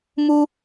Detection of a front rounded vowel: absent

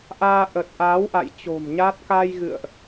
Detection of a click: absent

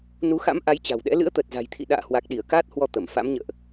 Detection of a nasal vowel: absent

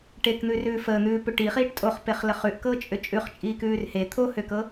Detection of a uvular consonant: present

